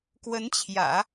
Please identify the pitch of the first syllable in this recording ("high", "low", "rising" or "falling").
rising